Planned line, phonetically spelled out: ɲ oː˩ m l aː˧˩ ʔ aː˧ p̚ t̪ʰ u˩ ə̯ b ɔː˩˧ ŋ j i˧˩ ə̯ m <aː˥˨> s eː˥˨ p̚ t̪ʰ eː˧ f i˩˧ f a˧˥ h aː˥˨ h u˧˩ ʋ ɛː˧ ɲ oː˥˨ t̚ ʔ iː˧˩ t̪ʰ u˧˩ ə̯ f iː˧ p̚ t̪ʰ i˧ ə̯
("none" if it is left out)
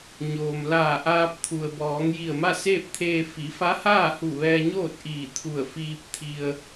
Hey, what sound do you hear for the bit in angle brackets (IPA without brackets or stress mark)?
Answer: a˥˨